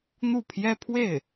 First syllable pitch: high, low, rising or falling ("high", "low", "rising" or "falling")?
falling